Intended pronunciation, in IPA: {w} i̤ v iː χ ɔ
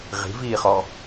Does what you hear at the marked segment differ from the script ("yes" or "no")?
yes